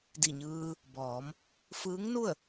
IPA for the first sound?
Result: d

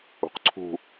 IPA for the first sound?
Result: ṳ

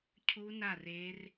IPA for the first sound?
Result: cʰ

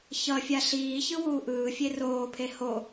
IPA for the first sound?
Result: ç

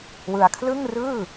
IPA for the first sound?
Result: w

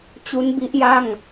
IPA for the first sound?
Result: t͡ɕ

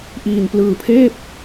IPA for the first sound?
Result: ʔ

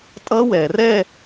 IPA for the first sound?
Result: tʼ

